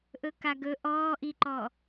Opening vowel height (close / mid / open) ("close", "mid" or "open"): mid